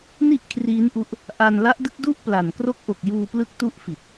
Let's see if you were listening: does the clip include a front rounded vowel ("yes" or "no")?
no